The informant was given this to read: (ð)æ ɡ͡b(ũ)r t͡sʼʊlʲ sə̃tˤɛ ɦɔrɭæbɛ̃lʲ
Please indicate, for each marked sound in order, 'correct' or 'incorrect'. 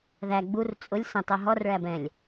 correct, incorrect: u

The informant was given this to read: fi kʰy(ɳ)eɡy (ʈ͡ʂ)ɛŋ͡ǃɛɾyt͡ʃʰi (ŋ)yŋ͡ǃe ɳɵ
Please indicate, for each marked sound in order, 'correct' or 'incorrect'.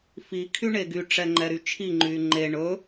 correct, correct, incorrect: ŋ͡ǃ

